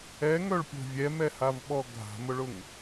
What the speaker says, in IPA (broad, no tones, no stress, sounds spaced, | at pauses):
ɛ ŋ œ ɭ pʲ o̤ vʲ ɛ m ɛ h a v ɓ ɔ ɡʱ a̤ m ʊ ɭ ʊ ŋ